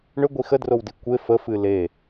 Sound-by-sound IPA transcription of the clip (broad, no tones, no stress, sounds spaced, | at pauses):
ɳ ʏ ɡʷ i x ə d r o w d i kʷ e f ə f ɨ l e